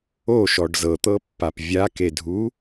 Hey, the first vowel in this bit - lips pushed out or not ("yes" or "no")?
yes